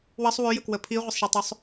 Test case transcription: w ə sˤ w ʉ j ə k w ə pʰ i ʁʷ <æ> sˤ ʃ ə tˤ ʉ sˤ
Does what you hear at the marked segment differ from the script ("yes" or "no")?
yes